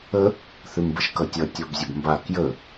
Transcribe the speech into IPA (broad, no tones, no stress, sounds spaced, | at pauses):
ə | θ ʉ m b ə ʃ k ʌ tʲ ʌ tʲ ɔ b zʲ ə b m b a k j ə